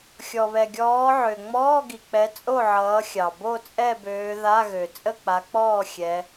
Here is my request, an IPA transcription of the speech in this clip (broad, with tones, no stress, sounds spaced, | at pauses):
xʲ ɔ˩ β ɛ˩ ɡʲ ɔː˨˦ ʕ ø˩ ŋ͡m ɔː˧˥˧ ɡ i˩ k͡p ɛ˨˦ t͡sʼ o˥˨ ʕ ʌː˨˦ xʲ ɑ˩ b o˥˨ t͡sʼ ɛ˥˨ b øː˨˦ ð a˧˥˧ ɣ ø˩ t͡sʼ ə˥˨ k͡p a˨˦ k͡p ɔː˥˨ xʲ ɛ˨˦